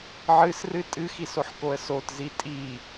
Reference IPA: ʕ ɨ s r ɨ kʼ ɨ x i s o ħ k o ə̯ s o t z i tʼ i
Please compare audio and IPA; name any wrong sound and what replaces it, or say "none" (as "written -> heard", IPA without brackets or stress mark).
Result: kʼ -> tʼ